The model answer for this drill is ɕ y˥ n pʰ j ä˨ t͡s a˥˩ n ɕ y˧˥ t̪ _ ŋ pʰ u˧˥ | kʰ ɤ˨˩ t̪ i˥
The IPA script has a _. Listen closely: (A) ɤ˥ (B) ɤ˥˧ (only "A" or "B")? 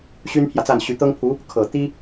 A